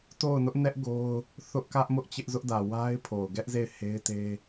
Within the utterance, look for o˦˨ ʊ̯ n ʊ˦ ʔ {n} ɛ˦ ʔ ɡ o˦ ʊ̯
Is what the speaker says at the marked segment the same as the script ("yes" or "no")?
yes